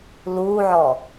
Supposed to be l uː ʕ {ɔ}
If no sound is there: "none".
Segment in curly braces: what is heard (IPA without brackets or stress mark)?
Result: ɔː